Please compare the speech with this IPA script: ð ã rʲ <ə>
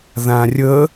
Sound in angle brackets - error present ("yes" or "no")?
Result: no